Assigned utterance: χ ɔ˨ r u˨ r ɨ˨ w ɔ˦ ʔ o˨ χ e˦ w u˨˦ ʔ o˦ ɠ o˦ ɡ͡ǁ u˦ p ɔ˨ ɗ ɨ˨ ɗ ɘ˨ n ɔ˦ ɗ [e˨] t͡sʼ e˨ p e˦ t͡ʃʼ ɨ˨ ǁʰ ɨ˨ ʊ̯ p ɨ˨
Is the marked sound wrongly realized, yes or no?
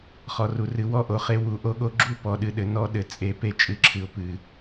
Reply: yes